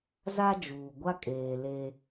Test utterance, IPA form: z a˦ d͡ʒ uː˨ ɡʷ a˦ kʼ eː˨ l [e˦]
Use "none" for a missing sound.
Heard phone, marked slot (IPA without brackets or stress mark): e˦